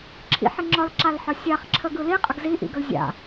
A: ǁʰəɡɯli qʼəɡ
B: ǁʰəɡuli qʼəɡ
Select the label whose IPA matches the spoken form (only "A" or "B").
A